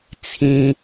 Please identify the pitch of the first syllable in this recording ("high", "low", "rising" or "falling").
high